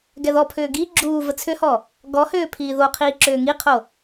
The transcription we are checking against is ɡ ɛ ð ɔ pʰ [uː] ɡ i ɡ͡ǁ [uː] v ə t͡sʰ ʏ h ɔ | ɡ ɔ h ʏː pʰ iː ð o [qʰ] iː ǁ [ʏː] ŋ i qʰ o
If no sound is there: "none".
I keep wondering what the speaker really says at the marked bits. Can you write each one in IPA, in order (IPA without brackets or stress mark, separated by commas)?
ʏː, uː, qʰ, ʏː